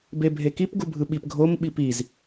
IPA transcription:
bebʱekip ɡubʱɯɓip ɡʱom ɓipiz

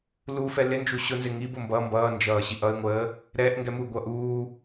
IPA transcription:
lufɛ lɪnd͡ʒu ɕʊnzɪ ŋibʊ mbʌ mbʌː nd͡ʒʌːɕiʔʌɪ̯ŋʷəː | ɾɛʔ ŋɡɛmuɡʷʌ ʔuː

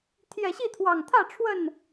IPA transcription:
t̪ʰjɛ˨˩ɕi˥˨t̪ʰwɑ˨˩ŋt̪ʰä˥˨ ʈ͡ʂʰwə˥˨n

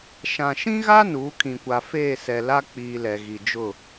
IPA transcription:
ʃã˨ʃĩ˦ɣa˦ nuː˨˦kʰĩ˨kʷa˨ feː˦˨sɛ˨ la˦k͡piː˨ lɛ˨ɣi˨d͡ʒʊ˦˨

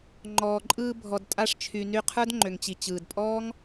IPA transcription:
ŋ͡ǃɔː˨ǃʼɯː˧ bʱɔ˨d tʼa˧ʂt͡ʃʰy˨ny˧ qʰə˞˦d ŋ͡ǃø˨ŋt͡ɕi˨ t͡ɕɯː˨dpʼɔː˦ŋ

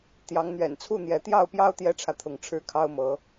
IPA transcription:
t̪jɑ˨˦ŋn̪ɥɛ̰˨˩nt͡sʰu˥˨n̪jɛ˨˦ t̪jɑ˥˨ʊ̯pjɑ˦ʊ̯ t̪jɛ˦ʈ͡ʂʰä˨t̪ʰʊ˨˦ŋ ʈ͡ʂʰɻ̩˨˦ kʰɑ˦ʊ̯mɤ˨˦

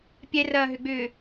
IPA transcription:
pʲɛrɐːɦʏɡ͡bʏː

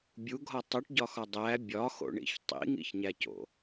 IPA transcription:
bʲuɡʱɒ tˤuʈɟɒxɒ dˤæ bʲɒxo̰ɳḭç tˤḭŋḭçɲæco̰

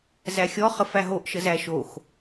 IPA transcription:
zæxʲɔ χəfæɦoʔ ʃəzæʃox

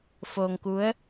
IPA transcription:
foː˧ŋku˧˥ə̯

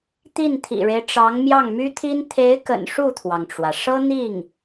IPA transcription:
t̪i˥˩nt̪ʰḭ˨˩ɻe˦ɪ̯ʈ͡ʂɑ˧˥ŋ mjɑ˥˩ŋmy˥t̪ʰi˥n t̪ʰe˧˥ɪ̯kə̰˨˩n ʂu˥˩t̪ʰwɑ˩ŋʈ͡ʂwä˩ʂɤ˥ n̪i˥˩ŋ

